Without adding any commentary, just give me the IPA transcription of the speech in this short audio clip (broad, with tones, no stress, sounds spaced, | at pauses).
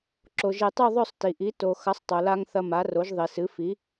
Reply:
ǁ o˩ ʒ e˨˩˦ tˤ u˥˨ ðˤ ɵ˥˨ sˤ t i˩ ʔ i˩˥ t o˩ x ɐ˩˥ sˤ tˤ o˩ l a˧ ŋ θ ɐ˧ m a˩˥ r o˩˥ ʒ ðˤ i˩ s ɨ˩˥ f i˩˥